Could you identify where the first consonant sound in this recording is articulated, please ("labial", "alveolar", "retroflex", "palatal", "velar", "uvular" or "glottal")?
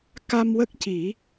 velar